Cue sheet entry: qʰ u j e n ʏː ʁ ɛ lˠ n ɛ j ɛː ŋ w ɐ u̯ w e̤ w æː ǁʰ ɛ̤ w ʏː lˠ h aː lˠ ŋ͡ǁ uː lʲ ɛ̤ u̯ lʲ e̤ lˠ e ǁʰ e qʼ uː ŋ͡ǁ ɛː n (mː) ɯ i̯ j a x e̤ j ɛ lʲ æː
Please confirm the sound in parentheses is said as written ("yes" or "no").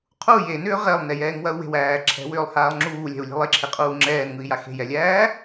no